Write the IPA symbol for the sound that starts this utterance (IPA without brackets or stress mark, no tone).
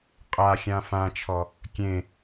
qʼ